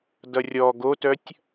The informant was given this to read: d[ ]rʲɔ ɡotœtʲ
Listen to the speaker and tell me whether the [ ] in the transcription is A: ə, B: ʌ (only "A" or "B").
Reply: B